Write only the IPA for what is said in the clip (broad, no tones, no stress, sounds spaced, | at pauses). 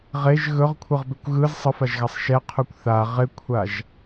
ʁ e ʒ ɣ ɵ ʁ kʷʰ ɯ ʁ b ɪ kʷ ɣ ɯ z sˤ ə f a ʒ ɣ a sˤ ʃ ɛ qʰ u kʷ θ a ʁ ɪ kʷʰ a ʒ